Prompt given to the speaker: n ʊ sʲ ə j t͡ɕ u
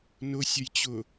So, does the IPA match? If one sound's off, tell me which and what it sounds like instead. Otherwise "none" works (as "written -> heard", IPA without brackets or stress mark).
u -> ʊ